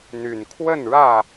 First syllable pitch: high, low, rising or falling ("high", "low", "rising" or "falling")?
low